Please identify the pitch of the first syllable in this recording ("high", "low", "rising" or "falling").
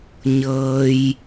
low